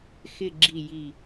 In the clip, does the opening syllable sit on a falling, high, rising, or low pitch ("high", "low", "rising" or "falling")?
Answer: low